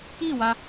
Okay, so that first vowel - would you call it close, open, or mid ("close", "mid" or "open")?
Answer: close